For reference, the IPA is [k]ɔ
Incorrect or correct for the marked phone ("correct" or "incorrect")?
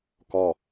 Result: correct